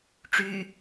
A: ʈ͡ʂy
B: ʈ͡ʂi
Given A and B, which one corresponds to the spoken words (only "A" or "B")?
A